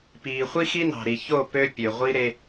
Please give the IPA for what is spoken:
p iː˨ χʷ i˦ x i˦ n ɑ̤˨ ɾ i˨ ç o˦˨ p ø˦ pʲ ø˨ ʁʷ i˦ ɾ e˦

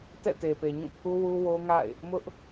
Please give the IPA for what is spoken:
t ɛ̰˦˨ t e˨ p e˨ ɲ ũ˦˨ pʰ u˦ w u˦ w o˦ ŋ a̰˦˨ ɪ̯ | m ʊ˦ ʔ

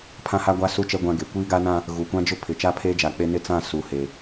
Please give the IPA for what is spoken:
pʰ ã˦ h a˦ ɡʷ a˦ s u˦˨ t͡ʃ ɛ˦ ɡʷ ã˦ ɡ e˨ kʷ iː˦ ɡ a˦ n ã˦ | ɣ u˨ kʷ ã˦ d͡ʒ ʊ˦ pʰ ɪ˨ t͡ʃ a˦ pʰ eː˦ d͡ʒ a˨ k͡p e˦ n ɪ˦ t͡s ã˦˨ s u˨ h e˨

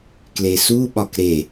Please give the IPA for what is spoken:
k l e s u ɓ ɒ k ɾ e

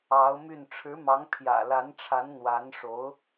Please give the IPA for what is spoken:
ɑ˧˥ ʊ̯ m y˥˩ n ʈ͡ʂʰ ɻ̩˧˥ m ɑ˧˥ ŋ pʰ j ä̰˨˩ l a˧˥ n ʈ͡ʂʰ a˧˥ n n̪ w a˧˥ n ʂ o˧˥ ʊ̯

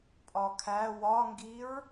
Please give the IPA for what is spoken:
pʼ ɒ kʰ æ w ɒ ŋ ɡ i ɹ

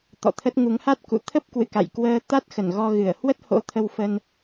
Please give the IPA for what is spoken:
t̪ ɔ̰˧˨ t̪ʰ ə˦˥ t̚ ŋ u˨˦ ŋ h a˦˥ t̚ k ṵ˧˨ t̪ʰ ə˦˥ p̚ k w ɨ̰˧˨ k a̰˧˨ j k w əː˧ t̪ a˦˥ t̚ x ə˧˩ n ɣ ɔ˧ ɣ ɨ˧˩ ə̯ h w ə˦˥ t̚ h o̰˧˥ t̪ʰ ə˧ w f ə˧ n

